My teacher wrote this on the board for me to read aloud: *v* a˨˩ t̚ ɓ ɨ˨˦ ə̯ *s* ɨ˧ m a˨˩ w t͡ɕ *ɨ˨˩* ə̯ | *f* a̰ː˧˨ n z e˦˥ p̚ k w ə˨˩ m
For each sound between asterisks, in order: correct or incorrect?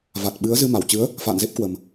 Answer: correct, incorrect: z, incorrect: ɨ˨˦, correct

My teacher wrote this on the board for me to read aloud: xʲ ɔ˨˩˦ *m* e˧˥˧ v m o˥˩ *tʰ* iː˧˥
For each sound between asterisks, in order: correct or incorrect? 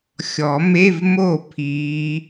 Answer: correct, incorrect: pʰ

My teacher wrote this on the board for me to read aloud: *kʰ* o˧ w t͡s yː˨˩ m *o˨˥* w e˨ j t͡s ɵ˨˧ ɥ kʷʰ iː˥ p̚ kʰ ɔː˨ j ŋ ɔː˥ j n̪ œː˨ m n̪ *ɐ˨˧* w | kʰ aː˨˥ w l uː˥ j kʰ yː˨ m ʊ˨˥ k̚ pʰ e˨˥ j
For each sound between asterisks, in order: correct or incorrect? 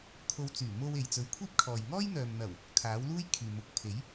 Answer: correct, incorrect: o˧, incorrect: ɐ˨˩

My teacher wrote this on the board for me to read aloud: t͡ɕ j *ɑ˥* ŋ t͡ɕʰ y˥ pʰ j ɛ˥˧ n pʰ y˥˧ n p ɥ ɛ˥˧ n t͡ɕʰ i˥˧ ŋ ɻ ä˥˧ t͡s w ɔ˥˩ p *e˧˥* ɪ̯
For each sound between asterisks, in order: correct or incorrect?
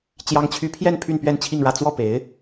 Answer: correct, correct

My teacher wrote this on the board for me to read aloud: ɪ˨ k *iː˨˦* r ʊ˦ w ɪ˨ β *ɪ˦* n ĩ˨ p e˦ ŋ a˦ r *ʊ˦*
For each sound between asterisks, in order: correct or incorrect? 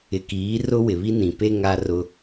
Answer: correct, incorrect: i˦, correct

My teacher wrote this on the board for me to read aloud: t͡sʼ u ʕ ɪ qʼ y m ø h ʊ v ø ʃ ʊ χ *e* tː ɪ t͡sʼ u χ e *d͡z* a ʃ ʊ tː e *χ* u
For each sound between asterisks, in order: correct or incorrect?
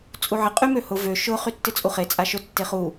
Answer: incorrect: y, incorrect: t͡sʼ, correct

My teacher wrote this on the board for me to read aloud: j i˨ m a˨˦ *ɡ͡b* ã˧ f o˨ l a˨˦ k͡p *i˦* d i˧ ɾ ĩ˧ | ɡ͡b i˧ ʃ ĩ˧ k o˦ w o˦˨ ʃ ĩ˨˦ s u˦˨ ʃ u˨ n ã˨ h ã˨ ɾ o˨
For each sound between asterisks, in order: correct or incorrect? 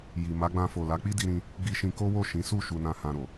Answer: correct, correct

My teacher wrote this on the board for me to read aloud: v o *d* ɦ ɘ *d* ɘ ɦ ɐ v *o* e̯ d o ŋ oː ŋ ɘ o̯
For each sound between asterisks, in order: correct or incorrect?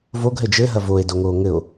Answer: incorrect: ɡ, incorrect: d͡ʒ, correct

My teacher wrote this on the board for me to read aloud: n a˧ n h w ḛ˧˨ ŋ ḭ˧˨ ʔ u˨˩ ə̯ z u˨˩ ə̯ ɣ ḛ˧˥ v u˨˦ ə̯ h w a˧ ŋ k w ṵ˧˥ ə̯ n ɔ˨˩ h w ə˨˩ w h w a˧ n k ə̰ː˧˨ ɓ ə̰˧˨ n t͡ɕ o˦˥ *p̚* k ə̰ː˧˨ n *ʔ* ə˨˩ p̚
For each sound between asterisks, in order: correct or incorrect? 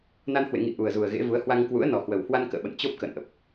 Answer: correct, correct

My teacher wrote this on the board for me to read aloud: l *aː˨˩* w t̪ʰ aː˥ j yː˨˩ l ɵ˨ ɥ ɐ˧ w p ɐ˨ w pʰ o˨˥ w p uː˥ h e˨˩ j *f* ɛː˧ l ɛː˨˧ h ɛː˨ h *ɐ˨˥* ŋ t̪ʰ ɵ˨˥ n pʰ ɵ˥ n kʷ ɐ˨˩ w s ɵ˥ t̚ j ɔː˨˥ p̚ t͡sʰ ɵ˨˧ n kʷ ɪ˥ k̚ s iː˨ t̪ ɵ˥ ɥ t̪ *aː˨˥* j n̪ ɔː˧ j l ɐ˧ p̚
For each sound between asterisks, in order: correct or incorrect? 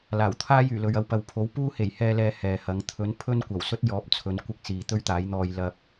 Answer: correct, incorrect: h, correct, correct

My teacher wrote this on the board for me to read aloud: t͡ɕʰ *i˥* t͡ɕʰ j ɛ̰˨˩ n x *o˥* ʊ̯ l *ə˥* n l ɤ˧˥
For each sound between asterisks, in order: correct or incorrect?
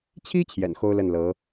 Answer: correct, correct, incorrect: ə˥˩

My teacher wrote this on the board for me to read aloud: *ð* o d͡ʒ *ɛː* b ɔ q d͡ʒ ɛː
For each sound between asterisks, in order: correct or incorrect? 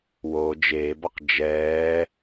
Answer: incorrect: w, incorrect: eː

